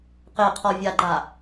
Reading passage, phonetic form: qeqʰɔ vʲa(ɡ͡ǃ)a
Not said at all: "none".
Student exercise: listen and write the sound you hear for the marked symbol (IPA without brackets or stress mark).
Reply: ɡ͡ǃ